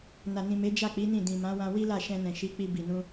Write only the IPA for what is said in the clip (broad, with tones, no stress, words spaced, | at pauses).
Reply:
na˨nĩ˨me˨˦ d͡ʒa˦˨k͡pi˨˦ nĩ˦˨ dĩ˨mã˨˦wã˧ wi˦la˦˨ ʃɛ̃˧nɛ̃˨ʃi˨˦k͡pi˧ bi˨nũ˧